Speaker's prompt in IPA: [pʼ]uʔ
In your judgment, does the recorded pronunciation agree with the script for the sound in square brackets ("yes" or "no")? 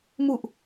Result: no